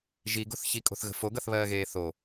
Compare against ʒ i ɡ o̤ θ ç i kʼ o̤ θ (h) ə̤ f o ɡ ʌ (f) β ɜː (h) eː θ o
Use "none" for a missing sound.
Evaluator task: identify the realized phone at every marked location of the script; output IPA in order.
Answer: ɣ, θ, ɣ

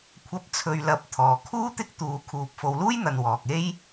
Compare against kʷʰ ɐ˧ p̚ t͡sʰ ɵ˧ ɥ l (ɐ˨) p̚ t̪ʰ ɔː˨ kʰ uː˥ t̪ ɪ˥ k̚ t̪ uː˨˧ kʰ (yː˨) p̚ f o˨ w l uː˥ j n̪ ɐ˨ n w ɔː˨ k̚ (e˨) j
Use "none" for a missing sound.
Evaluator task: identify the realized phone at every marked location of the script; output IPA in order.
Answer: ɐ˧, uː˨, e˥

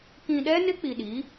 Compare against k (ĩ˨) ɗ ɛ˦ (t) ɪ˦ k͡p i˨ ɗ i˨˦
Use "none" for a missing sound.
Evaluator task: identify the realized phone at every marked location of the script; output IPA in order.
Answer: ĩ˨, n

